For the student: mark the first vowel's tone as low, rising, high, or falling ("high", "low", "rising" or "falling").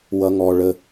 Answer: high